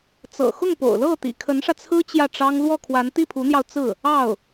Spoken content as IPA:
t͡s ɤ̰˨˩ x ʊ˥˩ ŋ p o̰˨˩ ʊ̯ l ɤ˥˩ t̪ ḭ˨˩ kʰ ə˧˥ n ʂ ä˧ t͡sʰ ɹ̩˥ t͡ɕ j ä˥˩ ʈ͡ʂ ɑ˥ ŋ l w ɔ˥˩ kʰ w a˧˥ n t̪ i˥˩ pʰ u˧˥ n̪ j ɑ˧ ʊ̯ t͡s ɹ̩˥˩ | ɑ˥˩ ʊ̯

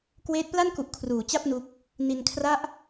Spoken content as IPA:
k w eː˦˥ t̚ p l a˥˩ n k u˨˩ ʔ kʰ r uː˩˦ t͡ɕ a˥˩ p̚ n u˦˥ k̚ | n i˧ n kʰ r a˥˩ ʔ

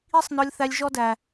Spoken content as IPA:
i˦ sˤ n ɔ˧ lʲ θ æ˧ lʲ ʒ ɔ˦ d æ˨

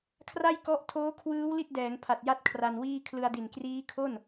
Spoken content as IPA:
kʰ r a˥˩ j k ɔ˦˥ ʔ tʰ oː˦˥ kʰ w ɯː˦˥ w l i˥˩ t̚ d ɛː˩˦ ŋ pʰ a˨˩ t̚ j a˦˥ t̚ kʰ r a˧ n w iː˥˩ kʰ l ɯ˧ a̯ d i˨˩ n k r iː˦˥ kʰ o˥˩ n

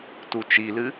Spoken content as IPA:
t u t͡ʃ i l ɨ

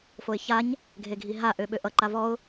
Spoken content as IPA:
f o ɪ̯ ç a ɲ | ɡʱ e ɡʱ i ɦ a ʔ ø ɓ ø ʔ ʌ ǃ a v ɔ ʊ̯

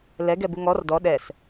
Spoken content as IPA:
l ɛ ɡ ɛ b u ŋ ɔ r d ɔ ɗ ɛ s

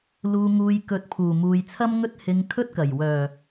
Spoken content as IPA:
l uː˨ ŋ uː˨ j k ɵ˨˥ t̚ pʰ uː˨˩ m uː˨ j t͡sʰ ɐ˥ m ŋ ɵ˥ t̚ h ɪ˧ ŋ kʰ ɵ˥ t̚ k ɐ˨˩ j w œː˨˩

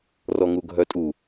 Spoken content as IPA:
r ɔ ŋ u ɡʱ œ tʼ u

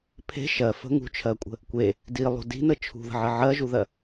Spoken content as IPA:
pʰ e̤ ʃ ɜ f ə̤ ŋ ṳ t͡ʃʰ ɜ kʷʼ ə̤ | kʷ e | d i lˠ ṳ d i̤ n ə t͡ʃʰ ṳ ð ə̤ ʕ ə ʕ ɜ ʒ u ð ɜ

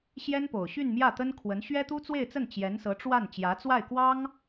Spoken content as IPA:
ɕ j ɛ˥ n p o˨˩ ʊ̯ ɕ y˥˧ n m j ä˥˩ t̪ ə˥ n kʰ w ə˧˥ n ɕ ɥ ɛ˥ t̪ u˥ t͡s w e˥˧ ɪ̯ t͡s ə˥˩ n t͡ɕ j ɛ˧˥ n s ɤ˧˥ ʈ͡ʂ w a˥˩ n t͡ɕ j ä˧˥ t͡s w a˥˩ ɪ̯ k w ɑ˥ ŋ

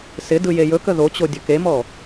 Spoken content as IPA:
s ɪ d ɯ j e j ɵ k ə ð o t͡ɕ o dʲ ɵ k e m ɔ

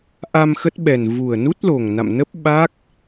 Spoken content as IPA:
ʔ a˧ m x ə˦˥ t̚ ɓ ɛ˨˩ n v u˨˩ ə̯ n u˦˥ t̚ l o˨˩ ŋ n a̰˧˨ m n ə˦˥ p̚ ɓ a˦˥ k̚

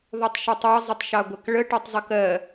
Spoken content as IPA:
ðˤ o tˤ ʃ o tˤ ɑ zˤ ə tˤ ʃ ɑ ɡʷ ə k ɭ ə ʈ ɜ tˤ zˤ ə k ɜ

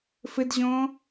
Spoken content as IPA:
f ɘ d ʑ ɔ̃

